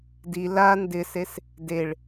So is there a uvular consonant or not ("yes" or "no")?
no